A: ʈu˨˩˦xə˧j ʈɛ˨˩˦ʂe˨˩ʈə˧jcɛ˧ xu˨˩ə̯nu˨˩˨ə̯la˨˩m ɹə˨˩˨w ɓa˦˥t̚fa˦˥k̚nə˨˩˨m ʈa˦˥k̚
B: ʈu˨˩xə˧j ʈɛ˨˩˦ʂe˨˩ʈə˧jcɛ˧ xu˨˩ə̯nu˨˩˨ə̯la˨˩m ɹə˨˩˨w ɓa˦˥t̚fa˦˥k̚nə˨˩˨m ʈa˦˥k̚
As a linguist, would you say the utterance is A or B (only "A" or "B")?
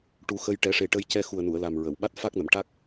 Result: A